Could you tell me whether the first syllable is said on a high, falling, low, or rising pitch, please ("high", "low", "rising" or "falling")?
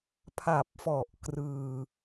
low